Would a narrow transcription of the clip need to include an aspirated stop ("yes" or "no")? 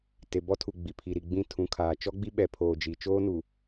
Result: yes